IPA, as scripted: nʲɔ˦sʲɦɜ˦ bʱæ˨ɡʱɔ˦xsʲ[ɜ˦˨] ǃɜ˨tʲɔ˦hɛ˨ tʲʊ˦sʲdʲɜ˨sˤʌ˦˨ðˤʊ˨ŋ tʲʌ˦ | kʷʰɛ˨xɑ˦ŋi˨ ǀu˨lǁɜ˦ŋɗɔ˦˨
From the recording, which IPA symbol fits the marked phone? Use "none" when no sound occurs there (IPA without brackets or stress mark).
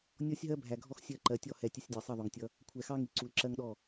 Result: ɜ˦˨